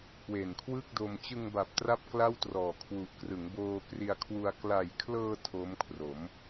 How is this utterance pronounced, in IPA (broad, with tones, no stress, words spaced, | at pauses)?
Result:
kwe˨˩nkʰwɯ˥˩k̚do˧m t͡ɕɯ˧ŋba˨˩p̚ tra˥˩p̚kla˥˩w trɔː˨˩kʰwu˨˩ʔkrɯ˩˦ŋboː˧ kri˧a̯kʰwu˧a̯ kla˨˩jkʰlɤː˧ tʰo˦˥mkʰro˩˦m